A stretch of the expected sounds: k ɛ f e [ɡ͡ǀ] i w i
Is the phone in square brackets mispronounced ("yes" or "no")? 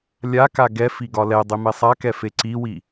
yes